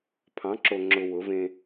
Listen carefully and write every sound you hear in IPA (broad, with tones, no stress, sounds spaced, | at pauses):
pʰ ɑ̃˨˦ ǁ o˨ ŋ͡ǁ ʊ˨ w ʊ˨˦ v ẽ˦